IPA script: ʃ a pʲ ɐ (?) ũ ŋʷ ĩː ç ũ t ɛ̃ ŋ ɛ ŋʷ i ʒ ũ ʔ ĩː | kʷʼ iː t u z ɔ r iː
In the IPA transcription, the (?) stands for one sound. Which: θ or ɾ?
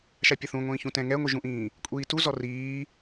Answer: θ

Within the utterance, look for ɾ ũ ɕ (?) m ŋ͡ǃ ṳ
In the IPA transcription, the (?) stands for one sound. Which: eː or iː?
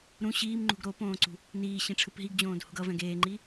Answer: iː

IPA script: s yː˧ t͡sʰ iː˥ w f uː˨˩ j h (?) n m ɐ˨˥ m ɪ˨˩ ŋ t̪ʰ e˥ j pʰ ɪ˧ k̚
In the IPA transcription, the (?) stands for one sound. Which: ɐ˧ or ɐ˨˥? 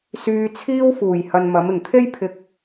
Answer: ɐ˧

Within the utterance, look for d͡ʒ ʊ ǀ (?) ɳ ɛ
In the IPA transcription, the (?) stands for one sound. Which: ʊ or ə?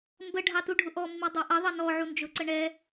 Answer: ə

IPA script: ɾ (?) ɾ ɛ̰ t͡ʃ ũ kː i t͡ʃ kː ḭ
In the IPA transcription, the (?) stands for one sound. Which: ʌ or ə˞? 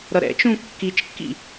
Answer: ʌ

